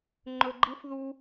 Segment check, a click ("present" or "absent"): present